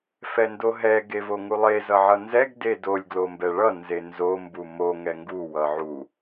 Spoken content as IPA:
fɛndoɦɛ ɡevoŋulˠe zʌʕʌnzɛɡ dedolʲ ɡlombɛɭʌ nzenzo mbumo ŋɛŋɡu wʌʕu

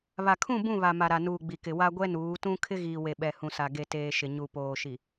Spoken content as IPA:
βa˨kʰũ˦˨ bũ˦˨βa˨ ma˨ɾa˨ nuː˨ ɡ͡bi˨kɪ˨ wa˦ ɡʷɛ˦nuː˨˦tũ˦ kʰɪ˦ɣiː˨ we˨ɓɛ˨ hũ˨sa˨ ɡe˨teː˨ʃɪ˨ ɲu˨poː˨ʃi˨

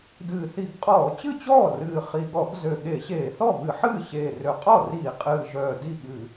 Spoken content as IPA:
dɨː˨˩θi˧˩˧ɡqʼɔː˧˩˧ t͡ɕɨ˥˩t͡ɕɔː˥˩ rɨː˨˩ χi˨˩ɠɔ˧˩˧ɡ zø˨˩ɠe˧˩˧ ɕeː˧˩˧θɔ˥˩vɨ˧˩˧ħɨː˥˩ ɕeː˨˩rø˨˩qʼɔ˥˩riː˧˩˧ qʼɨː˨˩ʒœː˨˩ di˥˩ɠɨ˧˩˧

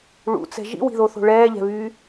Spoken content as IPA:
ɭṵt͡sɛ̤ ʒḭwi̤ðoθo̤ ɭɛːʎɛ̤βyː

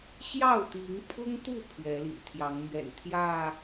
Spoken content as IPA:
ɕjɑ˥˨ʊ̯t̪i˨˦ŋpʰʊ˦ŋt̪u˥˨ pʰɥɛ˨˦lḭ˨˩t̪ʰjɑ˨˦ŋmɥɛ̰˨˩n t̪ʰjä˥˨

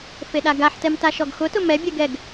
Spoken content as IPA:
feɗaɡaħtɛm taʃɔɡxʊtʊ mɛbʲɛɡ ɛɡ

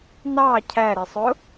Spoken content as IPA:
nɑ cʰæɾɪsˤʊ

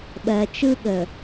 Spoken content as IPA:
ɓɜ˨t͡ʃɯ˦ɠə˨

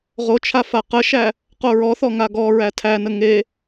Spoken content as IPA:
ʁot͡ʃʰa faqəʃæ | qoɹɔθɔ ŋaɡɔɹæ tʰænə ŋe

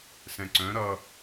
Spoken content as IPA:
sɛ̃ǀœ̃ ɾʌ

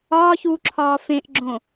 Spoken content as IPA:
ɒːçuːǁʰɒː fẽʔɡ͡ǁõ

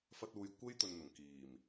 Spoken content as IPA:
fɐ˧t̚uː˨j kʷe˥jt̪ɵ˨nn̪ʊ˨˩ŋ kiː˨˩m

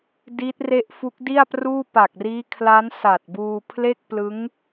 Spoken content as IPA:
di˦˥t̚re˦˥ʔ fu˦˥k̚di˥˩a̯pruː˥˩ pa˨˩k̚riː˦˥kʰla˦˥n sa˨˩t̚buː˧pʰle˥˩k̚ plɯ˦˥ŋ

